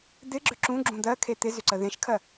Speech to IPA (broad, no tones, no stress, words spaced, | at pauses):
d̪ɪɡ͡ǁʏ ǁũɡ͡ǁũ d̪ɜkʰe t̪ɪzʏǀə ðẽʃkʰɜ